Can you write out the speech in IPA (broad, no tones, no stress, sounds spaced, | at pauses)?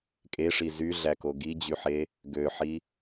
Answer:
kʼ e ʂ i z y ɮ æ k o ɡ i d͡ʑ y ħ e | ɡ ø ħ i